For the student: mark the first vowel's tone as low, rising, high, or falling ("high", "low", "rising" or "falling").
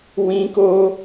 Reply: high